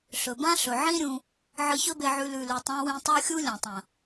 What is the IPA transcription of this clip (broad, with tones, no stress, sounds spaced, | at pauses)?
ɬ ɵ˨ b ã˦ ɬ ɵ˨ ʕ ĩ˦ ɾʲ ũ˧ | ʕ ɨ˧ ç ɵ˦ b e˧ ʕ ʉ˧ l ʉ˨ l ʉ˨ tˤ ã˧ w ĩ˧ tˤ o˦ xʲ u˦ lʲ ɐ̃˨ tˤ ɐ̃˨